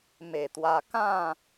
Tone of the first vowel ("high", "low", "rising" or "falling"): low